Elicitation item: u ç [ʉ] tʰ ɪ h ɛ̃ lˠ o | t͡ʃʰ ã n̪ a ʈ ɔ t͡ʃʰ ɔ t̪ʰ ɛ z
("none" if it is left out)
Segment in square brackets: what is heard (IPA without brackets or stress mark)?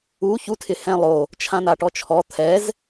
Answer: u